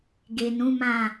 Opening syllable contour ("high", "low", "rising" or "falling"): low